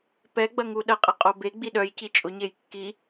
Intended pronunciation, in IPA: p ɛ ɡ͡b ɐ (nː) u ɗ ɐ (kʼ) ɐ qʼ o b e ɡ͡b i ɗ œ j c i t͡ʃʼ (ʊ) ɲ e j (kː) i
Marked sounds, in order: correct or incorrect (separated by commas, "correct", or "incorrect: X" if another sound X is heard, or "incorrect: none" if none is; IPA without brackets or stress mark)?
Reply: incorrect: ŋ, incorrect: qʼ, correct, correct